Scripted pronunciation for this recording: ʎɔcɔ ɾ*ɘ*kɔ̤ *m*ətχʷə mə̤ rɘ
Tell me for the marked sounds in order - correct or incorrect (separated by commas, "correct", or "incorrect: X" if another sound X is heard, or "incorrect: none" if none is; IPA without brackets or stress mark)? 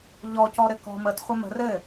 correct, correct